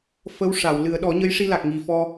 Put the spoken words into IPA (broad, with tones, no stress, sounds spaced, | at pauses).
f ə˧˥ w ʂ a˨˩˨ w l ɨ˨˩˦ ə̯ ɗ ɔ˨˩˦ ɲ ə˧˥ j ʂ i˧ l a˨˩ k̚ ŋ i˨˩ f ɔ˧